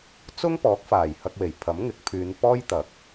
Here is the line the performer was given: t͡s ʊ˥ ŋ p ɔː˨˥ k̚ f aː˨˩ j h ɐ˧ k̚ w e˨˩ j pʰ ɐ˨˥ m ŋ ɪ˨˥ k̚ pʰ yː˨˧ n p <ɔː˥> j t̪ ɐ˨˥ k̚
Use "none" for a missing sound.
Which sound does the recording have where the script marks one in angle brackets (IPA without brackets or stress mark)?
ɔː˥